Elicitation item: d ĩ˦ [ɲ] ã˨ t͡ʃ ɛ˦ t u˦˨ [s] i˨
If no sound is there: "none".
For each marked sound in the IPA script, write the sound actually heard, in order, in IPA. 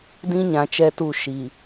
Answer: ɲ, ʃ

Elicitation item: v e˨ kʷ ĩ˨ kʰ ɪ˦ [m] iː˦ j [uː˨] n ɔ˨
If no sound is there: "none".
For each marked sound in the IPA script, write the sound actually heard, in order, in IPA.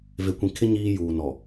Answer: ɲ, uː˨

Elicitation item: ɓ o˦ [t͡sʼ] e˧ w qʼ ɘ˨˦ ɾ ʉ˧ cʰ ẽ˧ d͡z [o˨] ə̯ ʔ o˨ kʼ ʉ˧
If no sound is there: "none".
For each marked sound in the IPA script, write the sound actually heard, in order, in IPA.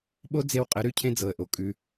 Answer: d͡z, ɤ˨

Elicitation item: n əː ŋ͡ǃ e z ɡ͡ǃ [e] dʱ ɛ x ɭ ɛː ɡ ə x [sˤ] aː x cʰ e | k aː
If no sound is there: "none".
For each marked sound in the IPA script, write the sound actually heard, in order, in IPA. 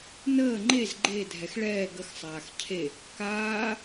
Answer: e, sˤ

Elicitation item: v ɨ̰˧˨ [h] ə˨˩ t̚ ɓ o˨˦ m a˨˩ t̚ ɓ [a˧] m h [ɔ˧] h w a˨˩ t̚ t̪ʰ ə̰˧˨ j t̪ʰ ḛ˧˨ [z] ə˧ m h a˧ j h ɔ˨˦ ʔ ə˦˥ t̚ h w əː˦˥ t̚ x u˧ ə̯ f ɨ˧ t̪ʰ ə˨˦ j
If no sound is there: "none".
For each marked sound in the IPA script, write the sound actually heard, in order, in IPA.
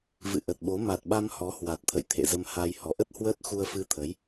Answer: ʔ, a˧, ɔ˨˦, z

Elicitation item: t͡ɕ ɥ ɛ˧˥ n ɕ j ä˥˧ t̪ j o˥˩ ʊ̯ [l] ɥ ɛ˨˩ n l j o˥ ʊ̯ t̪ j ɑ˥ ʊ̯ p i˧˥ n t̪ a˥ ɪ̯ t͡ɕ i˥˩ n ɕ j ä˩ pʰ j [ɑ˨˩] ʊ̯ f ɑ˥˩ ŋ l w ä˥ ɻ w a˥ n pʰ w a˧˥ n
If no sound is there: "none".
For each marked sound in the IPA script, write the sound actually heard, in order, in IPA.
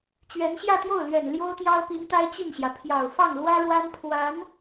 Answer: l, ɑ˨˩

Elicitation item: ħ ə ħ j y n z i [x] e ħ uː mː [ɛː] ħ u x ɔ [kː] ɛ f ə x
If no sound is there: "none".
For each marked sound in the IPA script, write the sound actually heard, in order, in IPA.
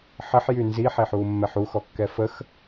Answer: ħ, ɛ, kː

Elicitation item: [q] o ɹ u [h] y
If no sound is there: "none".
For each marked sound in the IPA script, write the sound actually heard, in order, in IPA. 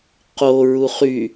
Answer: q, χ

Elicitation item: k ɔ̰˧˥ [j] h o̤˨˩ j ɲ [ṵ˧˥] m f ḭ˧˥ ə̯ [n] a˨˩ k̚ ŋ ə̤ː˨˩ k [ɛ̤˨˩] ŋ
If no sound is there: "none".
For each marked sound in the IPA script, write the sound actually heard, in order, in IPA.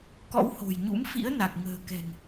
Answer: w, ṵ˧˥, n, ɛ̤˨˩

